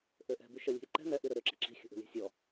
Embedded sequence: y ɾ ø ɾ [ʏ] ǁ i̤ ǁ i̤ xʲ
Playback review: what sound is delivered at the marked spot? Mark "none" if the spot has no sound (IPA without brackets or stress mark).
ʏ